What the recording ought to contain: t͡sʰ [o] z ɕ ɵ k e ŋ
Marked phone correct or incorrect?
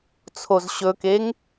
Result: correct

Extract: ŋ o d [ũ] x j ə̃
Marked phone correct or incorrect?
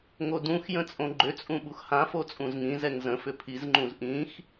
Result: correct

